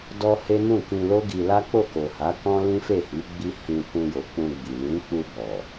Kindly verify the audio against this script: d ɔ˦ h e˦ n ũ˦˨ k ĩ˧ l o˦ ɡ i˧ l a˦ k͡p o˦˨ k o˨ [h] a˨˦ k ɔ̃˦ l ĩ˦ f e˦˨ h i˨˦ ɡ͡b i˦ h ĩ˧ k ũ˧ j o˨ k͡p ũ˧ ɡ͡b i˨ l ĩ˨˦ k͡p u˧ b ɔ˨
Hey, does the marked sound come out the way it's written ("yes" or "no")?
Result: yes